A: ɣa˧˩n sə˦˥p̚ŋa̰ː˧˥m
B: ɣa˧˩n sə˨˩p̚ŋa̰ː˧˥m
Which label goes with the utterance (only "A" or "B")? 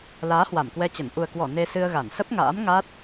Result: A